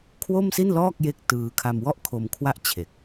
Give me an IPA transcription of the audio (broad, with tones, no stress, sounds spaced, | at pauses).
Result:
kʰ w o˥˩ m s i˥˩ n l ɔː˥˩ k̚ j e˥˩ k̚ t ɯː˧ kʰ a˧ m w ɔ˥˩ ʔ kʰ o˧ m kʰ w a˥˩ ʔ t͡ɕʰ e˨˩ k̚